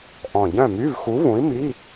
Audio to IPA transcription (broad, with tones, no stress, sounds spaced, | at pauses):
ʔ ɔ̃˨˩ ɟ œ̃˥˨ m y˧˥˧ v x u˨˥ v ũ˨˥ i̯ m i˧˥˧